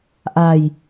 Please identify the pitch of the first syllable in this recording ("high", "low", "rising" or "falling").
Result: low